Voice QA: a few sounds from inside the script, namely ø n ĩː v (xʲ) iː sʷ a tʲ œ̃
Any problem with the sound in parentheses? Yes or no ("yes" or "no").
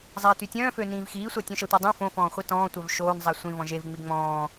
yes